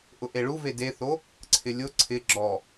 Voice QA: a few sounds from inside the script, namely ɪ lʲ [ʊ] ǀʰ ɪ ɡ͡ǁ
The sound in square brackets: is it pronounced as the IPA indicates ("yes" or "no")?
yes